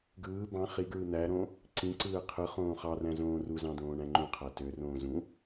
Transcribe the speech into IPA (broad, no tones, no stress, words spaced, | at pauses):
ɡɯː bɑ̃ χiɡɹɯ n̪æɾõ | ǀĩǀɯː qʰɯ χõːχɑræ̃ zõːruzɑ̃ dõːɳæ̃ŋ͡ǃũqʰæ tørõː zũ